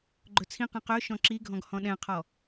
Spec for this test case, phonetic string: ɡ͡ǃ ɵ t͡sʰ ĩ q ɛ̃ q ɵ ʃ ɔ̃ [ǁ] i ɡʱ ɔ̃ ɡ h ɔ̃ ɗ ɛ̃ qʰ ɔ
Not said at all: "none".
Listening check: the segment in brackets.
ǁ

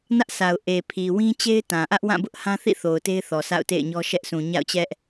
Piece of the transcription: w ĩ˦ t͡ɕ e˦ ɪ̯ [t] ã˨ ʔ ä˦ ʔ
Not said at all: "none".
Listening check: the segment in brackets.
t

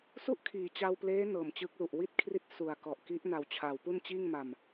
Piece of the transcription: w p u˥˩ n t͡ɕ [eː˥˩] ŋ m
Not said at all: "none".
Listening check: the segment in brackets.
iː˥˩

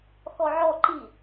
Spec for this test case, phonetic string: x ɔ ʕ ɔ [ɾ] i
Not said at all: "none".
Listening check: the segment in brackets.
ǃ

